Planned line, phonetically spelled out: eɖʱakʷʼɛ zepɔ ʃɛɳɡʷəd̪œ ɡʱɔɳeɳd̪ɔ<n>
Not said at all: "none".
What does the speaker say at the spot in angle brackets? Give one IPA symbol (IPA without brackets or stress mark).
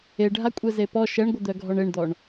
ɳ